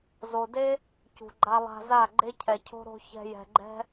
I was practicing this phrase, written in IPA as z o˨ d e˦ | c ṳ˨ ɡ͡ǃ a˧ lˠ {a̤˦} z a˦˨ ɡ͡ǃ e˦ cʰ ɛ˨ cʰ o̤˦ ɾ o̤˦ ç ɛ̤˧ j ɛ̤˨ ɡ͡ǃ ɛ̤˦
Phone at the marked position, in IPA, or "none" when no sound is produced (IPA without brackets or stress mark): a̤˧